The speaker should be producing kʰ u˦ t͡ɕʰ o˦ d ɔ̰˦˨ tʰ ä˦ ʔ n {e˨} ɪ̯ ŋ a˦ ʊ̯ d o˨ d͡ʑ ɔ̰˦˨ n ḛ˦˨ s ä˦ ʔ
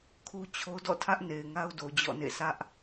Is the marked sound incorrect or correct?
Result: correct